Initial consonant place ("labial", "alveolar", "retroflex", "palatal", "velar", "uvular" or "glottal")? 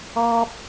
labial